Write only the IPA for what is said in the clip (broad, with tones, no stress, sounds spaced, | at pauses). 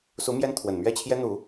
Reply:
s u˧˥ m j ɛ˥ n t̪ʰ w ə˨˩ n m ɥ ɛ˥˩ t͡ɕʰ j ɛ˥ n̪ u˨˩˦